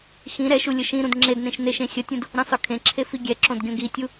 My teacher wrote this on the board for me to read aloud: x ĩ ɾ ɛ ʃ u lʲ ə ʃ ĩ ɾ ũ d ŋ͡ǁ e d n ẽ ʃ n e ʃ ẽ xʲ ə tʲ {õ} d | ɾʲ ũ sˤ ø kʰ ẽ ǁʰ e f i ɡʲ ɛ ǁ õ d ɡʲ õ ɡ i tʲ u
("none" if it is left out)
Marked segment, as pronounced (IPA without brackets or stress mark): ũ